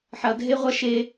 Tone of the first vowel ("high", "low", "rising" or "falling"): low